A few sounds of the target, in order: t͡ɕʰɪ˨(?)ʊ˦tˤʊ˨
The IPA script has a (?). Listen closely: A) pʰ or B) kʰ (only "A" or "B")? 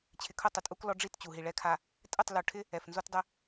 B